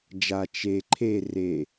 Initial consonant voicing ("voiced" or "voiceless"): voiced